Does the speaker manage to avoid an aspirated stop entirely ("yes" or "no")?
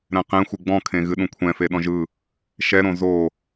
no